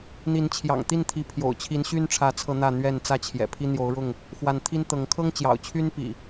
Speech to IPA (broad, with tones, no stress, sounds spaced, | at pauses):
n̪ i˨˦ n t͡ɕʰ j ɑ̰˨˩ ŋ t̪ i˥˨ n t̪ʰ i˨˦ pʰ j o̰˨˩ ʊ̯ t͡ɕʰ i˨˦ n ɕ y˦ n ʈ͡ʂʰ ä˨˦ t͡sʰ ɤ˨˦ n̪ ä˥˨ n̪ ɥ ɛ˥˨ n t͡s ä˥˨ t͡ɕʰ j ɛ̰˨˩ pʰ i˦ n̪ j o˨˦ ʊ̯ ɻ ʊ˥˨ ŋ | x w a˨˦ n t̪ʰ i˦ n t̪ ɤ˨˦ ŋ kʰ ɤ˦ ŋ t͡ɕ j ɑ̰˨˩ ʊ̯ t͡ɕʰ y˦ n p ḭ˨˩